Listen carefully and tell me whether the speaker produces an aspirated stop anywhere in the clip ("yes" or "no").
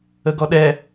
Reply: no